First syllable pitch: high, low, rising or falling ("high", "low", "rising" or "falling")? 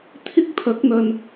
high